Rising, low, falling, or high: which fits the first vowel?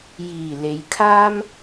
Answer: low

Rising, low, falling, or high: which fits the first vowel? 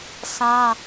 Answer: high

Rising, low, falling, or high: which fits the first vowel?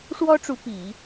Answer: high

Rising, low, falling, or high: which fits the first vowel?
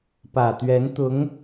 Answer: low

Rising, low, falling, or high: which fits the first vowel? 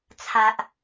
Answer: low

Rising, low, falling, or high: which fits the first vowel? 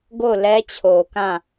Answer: falling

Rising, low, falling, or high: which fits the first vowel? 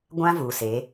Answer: high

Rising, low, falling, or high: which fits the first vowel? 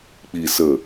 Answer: low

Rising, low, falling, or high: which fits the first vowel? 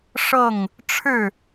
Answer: falling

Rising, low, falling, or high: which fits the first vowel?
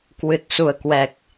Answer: low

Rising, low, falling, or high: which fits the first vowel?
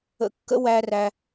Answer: low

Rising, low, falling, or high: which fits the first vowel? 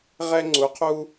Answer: high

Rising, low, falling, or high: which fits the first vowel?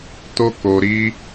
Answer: high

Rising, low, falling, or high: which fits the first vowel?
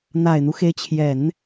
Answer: low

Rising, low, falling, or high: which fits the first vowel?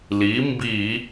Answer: rising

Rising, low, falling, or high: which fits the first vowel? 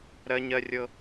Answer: high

